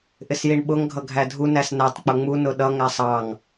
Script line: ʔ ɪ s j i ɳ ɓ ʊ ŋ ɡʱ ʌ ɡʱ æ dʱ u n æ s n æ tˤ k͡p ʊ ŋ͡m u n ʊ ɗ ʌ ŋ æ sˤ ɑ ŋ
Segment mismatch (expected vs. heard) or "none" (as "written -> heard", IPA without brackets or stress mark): none